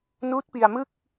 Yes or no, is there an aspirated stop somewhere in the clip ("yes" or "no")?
no